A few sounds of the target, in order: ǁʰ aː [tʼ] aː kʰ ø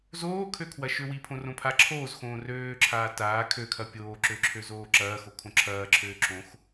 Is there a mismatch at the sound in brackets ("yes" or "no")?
yes